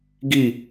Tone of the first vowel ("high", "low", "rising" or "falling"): falling